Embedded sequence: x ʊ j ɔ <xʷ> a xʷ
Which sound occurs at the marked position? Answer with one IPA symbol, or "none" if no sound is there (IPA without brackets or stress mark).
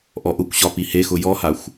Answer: h